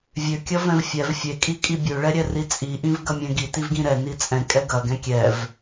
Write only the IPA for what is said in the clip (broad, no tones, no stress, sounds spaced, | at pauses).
vʲ ø kʲ ɐ v ɛ̃ v fʲ ɛ v fʲ e kʼ i kʼ i bʲ ø ɭ ɛ ɾʲ ɛ r i t͡sʼ i ʔ ĩ v ɡ ɐ mʲ ɛ̃ ɡ i t i v ɡ ĩ ɾ ɛ n i t͡sʼ ɛ̃ kʼ ɛ ɡ ɐ ɡ ɛ̃ kʲ ɛ v